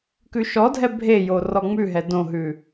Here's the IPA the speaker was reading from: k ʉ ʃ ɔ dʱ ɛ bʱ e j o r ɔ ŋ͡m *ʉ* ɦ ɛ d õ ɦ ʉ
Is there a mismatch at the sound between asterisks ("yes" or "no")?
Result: no